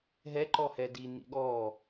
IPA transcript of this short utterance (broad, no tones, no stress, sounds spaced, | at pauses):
ɦ ɛ ǃ ɔ h ɛ d i n ḭ ɠ ɔː